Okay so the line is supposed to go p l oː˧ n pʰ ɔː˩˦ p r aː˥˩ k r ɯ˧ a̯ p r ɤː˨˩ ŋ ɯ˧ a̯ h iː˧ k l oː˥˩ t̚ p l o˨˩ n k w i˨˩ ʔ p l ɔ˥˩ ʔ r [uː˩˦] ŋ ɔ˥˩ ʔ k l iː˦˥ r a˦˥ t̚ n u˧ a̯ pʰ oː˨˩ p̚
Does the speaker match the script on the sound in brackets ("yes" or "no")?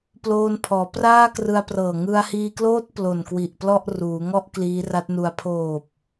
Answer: yes